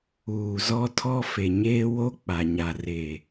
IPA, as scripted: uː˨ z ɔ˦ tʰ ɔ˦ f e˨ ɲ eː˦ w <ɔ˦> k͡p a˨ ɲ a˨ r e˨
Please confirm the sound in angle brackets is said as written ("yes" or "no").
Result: no